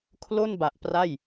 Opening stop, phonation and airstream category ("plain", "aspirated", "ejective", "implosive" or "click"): aspirated